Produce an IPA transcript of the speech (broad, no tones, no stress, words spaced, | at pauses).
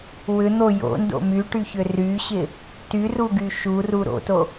wʏn̪o jo̰ndo̰ myʈyçʏ ryɕɪ | tyruɡy ʃuru ɾo̰to